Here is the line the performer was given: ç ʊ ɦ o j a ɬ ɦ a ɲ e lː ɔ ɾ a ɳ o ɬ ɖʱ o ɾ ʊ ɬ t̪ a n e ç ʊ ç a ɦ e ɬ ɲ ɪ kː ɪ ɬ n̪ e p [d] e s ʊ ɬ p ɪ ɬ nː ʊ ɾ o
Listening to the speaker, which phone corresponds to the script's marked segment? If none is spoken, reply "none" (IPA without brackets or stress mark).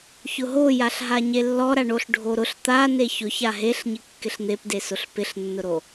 d